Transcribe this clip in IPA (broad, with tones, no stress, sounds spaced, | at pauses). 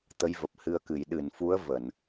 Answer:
t̪ ə˨˦ j v ə˨˩ p̚ h ɨ˧ ə̯ k ɨ˧˩ j ɗ ɨ˧˩ n f u˨˦ ə̯ v ə˧˩˨ n